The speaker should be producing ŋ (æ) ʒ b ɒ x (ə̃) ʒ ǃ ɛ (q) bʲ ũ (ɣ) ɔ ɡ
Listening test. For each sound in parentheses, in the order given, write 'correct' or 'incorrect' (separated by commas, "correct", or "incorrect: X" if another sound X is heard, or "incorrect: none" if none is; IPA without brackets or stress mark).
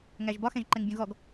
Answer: correct, incorrect: ɛ̃, incorrect: ŋ, correct